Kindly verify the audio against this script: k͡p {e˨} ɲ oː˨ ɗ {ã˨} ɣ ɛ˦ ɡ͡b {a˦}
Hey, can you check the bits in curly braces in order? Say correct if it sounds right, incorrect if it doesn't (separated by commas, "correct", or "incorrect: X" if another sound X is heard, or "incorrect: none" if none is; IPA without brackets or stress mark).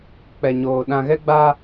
incorrect: ɛ˨, correct, correct